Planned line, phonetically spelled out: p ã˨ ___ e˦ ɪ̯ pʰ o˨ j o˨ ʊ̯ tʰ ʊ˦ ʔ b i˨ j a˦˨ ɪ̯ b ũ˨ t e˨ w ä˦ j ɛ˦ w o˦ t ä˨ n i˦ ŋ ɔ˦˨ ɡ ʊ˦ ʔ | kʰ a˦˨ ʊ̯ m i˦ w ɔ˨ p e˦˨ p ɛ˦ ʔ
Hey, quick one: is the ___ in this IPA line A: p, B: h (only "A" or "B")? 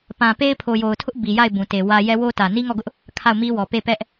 A